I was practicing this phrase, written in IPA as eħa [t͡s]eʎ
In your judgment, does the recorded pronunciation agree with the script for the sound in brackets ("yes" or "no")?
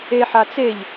yes